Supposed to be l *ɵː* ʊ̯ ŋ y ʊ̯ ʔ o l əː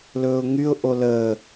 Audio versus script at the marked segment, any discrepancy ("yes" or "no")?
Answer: no